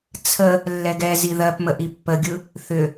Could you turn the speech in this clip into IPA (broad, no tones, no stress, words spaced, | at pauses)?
t͡sʰə | lːɛɡɛzi ðɜpmə ʔipːəɡʲɯ | θʏ